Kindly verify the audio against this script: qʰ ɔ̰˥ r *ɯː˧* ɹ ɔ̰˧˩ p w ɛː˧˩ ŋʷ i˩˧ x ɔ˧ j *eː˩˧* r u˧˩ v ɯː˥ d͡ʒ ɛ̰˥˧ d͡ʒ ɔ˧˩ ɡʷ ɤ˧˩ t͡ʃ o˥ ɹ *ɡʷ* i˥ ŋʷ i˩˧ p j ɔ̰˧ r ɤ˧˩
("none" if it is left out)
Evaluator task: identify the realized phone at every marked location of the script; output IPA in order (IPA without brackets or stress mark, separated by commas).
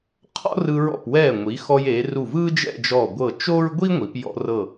ɯ˧, eː˩˧, ɡʷ